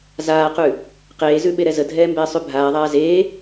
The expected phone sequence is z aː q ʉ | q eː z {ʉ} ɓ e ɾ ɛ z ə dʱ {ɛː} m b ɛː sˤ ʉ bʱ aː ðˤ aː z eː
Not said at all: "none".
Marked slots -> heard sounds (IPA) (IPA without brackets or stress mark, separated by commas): ʉ, ɛː